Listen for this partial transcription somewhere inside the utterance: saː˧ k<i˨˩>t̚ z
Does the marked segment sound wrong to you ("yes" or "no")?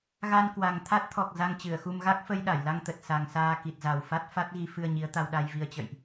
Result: no